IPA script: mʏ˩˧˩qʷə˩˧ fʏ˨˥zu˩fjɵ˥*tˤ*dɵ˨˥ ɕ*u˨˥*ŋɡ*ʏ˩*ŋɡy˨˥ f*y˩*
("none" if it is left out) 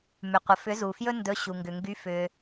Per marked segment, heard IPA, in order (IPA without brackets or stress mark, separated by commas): n, u˩, ʏ˩, ʏ˩